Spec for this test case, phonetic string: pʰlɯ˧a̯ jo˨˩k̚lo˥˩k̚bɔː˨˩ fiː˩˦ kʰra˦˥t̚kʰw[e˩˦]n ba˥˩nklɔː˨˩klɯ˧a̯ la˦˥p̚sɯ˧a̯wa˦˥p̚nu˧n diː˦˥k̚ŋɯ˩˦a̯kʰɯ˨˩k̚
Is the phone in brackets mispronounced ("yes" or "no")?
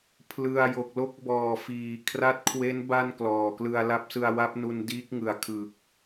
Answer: yes